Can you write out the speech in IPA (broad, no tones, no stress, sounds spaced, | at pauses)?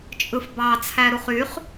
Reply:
t͡ʃʼ ɯ f b ɑ t͡sʰ æ ɾ u χ y χ